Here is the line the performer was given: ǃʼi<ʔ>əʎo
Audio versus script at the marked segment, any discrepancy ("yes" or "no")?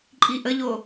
no